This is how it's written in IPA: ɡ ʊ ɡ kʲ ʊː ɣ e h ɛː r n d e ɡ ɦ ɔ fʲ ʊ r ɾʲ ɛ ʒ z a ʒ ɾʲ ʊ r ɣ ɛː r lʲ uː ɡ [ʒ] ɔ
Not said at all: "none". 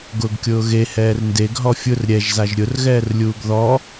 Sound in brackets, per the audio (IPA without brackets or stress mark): ð